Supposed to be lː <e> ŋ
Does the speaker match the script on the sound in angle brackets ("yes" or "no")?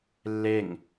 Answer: yes